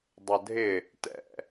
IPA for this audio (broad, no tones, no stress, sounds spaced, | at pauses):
dˤ ə dʱ ɪ | t ɛ̰